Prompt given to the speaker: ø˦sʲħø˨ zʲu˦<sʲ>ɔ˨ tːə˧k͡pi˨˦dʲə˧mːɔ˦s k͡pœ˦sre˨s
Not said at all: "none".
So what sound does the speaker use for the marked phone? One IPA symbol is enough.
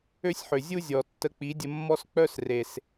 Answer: zʲ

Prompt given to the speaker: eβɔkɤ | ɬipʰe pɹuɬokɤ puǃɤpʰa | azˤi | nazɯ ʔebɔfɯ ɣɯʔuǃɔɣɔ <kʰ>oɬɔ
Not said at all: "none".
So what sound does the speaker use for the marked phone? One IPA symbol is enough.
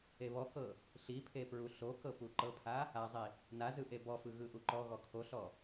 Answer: kʰ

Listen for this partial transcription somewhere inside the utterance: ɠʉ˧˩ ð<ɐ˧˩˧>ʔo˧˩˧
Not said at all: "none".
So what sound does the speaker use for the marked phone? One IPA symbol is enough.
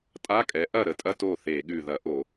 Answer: ɐ˧˩˧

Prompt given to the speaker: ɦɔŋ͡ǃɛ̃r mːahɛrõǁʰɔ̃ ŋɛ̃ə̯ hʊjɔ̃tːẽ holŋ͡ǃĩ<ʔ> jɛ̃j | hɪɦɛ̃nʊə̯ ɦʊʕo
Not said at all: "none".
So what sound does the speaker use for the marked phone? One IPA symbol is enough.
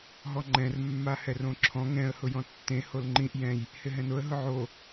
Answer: ʔ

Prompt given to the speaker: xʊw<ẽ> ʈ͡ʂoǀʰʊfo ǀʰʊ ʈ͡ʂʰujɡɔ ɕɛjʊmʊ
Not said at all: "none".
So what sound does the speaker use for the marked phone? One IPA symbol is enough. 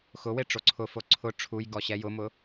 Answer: e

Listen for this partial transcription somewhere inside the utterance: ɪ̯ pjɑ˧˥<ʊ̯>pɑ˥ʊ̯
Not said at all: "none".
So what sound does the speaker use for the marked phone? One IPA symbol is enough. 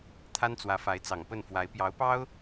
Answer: ʊ̯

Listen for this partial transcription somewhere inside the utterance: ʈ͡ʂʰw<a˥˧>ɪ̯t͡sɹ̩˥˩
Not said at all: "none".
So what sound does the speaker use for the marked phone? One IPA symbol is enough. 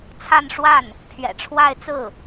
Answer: a˥˧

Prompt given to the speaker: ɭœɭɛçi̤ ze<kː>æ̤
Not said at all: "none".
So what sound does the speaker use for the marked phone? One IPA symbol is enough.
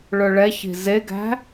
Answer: ɡ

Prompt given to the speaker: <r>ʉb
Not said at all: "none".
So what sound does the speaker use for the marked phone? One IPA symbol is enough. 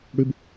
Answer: ɽ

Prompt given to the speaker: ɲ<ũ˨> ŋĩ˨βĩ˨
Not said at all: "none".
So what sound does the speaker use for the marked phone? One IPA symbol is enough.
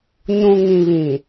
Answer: ũ˨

